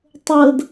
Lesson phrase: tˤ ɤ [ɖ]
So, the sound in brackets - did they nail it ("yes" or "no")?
no